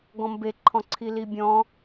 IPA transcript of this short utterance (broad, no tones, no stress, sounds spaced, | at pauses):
ɡ ɔ̃ m b e ǃʰ ɔ̃ ǀʰ i l i bʲ ɔ̃